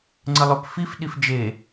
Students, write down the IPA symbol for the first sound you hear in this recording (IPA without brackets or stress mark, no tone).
ŋ͡ǀ